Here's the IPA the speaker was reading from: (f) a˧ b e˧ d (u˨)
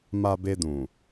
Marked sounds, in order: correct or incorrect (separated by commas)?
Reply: incorrect, incorrect